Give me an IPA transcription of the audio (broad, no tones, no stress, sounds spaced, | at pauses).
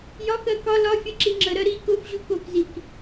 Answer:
j ɒ k ɜ k ɒ l ɒ fʲ ʌ ǁ i ŋ͡ǁ ə ɾ ɜ ɾ i k ʊ f ʑ u k o k z i k